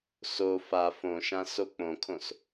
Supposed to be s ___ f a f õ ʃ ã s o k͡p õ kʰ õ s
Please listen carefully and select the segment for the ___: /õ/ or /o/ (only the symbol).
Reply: o